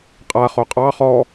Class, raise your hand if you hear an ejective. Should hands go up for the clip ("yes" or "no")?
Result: yes